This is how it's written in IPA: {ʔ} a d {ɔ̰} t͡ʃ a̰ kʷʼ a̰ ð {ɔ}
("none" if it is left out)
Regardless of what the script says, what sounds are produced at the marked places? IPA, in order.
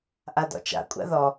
ʔ, ɔ̰, ɔ

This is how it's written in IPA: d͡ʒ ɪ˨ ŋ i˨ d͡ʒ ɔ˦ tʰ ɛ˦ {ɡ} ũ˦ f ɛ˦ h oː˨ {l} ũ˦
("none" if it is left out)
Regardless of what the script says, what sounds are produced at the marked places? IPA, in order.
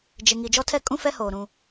kʼ, ɾ

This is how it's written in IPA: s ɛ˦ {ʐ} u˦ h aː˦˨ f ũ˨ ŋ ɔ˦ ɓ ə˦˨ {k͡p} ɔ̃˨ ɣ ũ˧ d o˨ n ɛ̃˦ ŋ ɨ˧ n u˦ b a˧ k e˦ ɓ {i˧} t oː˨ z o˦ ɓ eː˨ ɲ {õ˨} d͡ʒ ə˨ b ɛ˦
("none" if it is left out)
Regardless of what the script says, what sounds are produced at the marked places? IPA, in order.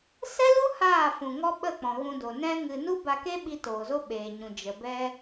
l, k͡p, i˧, ũ˨

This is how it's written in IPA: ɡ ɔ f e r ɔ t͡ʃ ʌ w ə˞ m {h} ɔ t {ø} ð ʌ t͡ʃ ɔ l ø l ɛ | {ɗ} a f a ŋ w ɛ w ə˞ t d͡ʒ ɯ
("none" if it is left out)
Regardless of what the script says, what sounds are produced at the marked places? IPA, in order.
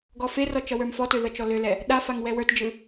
f, ø, ɗ

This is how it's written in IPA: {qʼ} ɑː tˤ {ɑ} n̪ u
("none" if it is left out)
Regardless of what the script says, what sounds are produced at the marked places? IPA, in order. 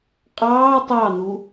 qʼ, ɑ

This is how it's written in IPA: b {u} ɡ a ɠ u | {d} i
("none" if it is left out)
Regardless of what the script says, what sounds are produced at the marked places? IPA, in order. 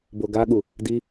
o, d

